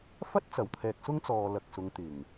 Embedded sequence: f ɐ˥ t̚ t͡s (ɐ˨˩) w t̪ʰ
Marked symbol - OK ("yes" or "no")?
yes